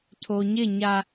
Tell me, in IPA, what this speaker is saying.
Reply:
tʰ o˨ ɲ ɪ˦˨ ɲ a˨

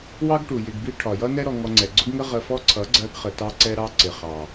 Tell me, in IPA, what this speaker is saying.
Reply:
w ɑ˦ ɡ ʈ u˨ j ɪ˧ ɡ b i˦ ʈʰ ɒ˨ j ʌ˦ n ɛ˦ ɾ ɔ˧ ŋ ɔ˧ ŋ͡ǀ ɛ˨ ɡ͡ǀ ʊ˦ ɡ ŋ ə˦ ʁ ə˧ f ɔ˦ ǀʰ ʌ˨˦ ɡ͡ǀ ɜ˧ ɡ χ ə˨ t ɑ˧ ǀ ɛ˧ ɾ ɑ˧ ǀ ɪ˨ χ ɑ˨

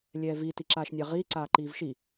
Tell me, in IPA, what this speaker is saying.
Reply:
lʲ ɛː v i t i ǁ aː ʃ nʲ a ʁ iː ǀ aː ǃ iː v ʃ i

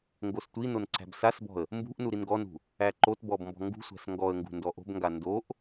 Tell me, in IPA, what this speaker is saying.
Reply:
ŋ ɡ o s tʷ i n o n ǀ æ̤ b s a s b ɔ̤ ə̯ | m b ṳ ʔ n u ɾ i n ɡ ɔ n ṳ | æ ǃ o t b ɔ b m b ɔ̤ ŋ ɡ ṳ sʷ æ̤ s ŋ ɡ ɔ ə̯ ŋ ɡ ṳ n d ɔ ʔ o̤ b ŋ ɡ a n d o ʔ

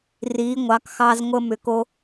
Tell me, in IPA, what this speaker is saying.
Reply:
r i˩˧ ŋʷ ɑ˩˧ k x ɑ˧ z ŋʷ ə˧ m ʏ˩˧ k o˧

